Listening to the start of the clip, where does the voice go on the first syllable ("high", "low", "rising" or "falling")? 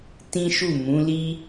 high